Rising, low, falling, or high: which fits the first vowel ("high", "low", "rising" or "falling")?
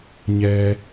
low